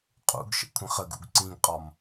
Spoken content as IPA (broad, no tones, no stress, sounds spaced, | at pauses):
qʼ ṵ ɡ ʃ ə̰ kʷʰ ə̃ χ ə ɡ ṵ ɡ ǀ ĩ ɡ qʼ ɒ m